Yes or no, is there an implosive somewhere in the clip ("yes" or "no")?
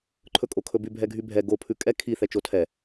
no